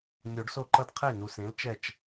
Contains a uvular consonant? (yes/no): yes